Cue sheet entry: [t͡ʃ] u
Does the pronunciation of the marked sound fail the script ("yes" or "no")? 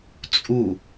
yes